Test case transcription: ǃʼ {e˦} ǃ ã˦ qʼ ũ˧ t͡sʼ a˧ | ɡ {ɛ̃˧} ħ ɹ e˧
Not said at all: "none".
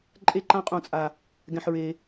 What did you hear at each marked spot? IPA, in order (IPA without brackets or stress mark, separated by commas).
e˦, ɛ̃˧